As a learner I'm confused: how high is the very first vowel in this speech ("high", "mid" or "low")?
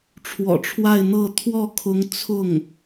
mid